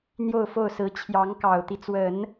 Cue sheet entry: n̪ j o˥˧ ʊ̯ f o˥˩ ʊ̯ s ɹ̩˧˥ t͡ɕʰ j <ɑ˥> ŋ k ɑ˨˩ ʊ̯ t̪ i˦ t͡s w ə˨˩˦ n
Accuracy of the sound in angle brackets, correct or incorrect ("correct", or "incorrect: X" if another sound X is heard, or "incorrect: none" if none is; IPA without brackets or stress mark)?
incorrect: ɑ˧˥